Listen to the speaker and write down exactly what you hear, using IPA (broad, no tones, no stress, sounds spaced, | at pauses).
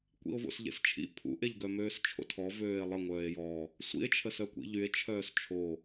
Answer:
kʷ ḭ o̯ v o̰ s ʎ ḛ s t͡ʃʰ ḭ pʰ ṵ ʔ e ʎ ɡ œ m øː s t͡ʃʰ o̰ tʰ ɔ v øː e̯ lˠ ə ŋʷ œː e̯ j ɔ | sʷ ḭ e̯ t͡ʃʰ ə s œ kʷ ḭ ʎ y e̯ t͡ʃʰ œː s t͡ʃʰ o